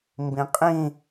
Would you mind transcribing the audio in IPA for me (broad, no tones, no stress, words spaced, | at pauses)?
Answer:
mbĩqʼĩ